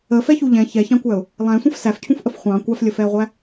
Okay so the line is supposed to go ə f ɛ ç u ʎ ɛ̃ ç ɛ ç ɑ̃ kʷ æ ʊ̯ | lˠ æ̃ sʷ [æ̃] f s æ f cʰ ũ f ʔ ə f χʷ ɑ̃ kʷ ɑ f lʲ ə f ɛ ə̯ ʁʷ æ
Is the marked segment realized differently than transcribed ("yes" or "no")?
yes